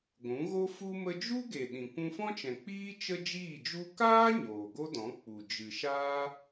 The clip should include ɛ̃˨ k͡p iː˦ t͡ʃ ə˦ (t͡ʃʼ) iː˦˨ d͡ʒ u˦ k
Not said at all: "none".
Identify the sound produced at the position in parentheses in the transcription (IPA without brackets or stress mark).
d͡ʒ